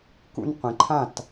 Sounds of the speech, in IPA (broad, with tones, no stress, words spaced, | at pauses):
kṵ˧n qʷĩ˩ǃʰã˥˩t